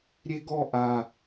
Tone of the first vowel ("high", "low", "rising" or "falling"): high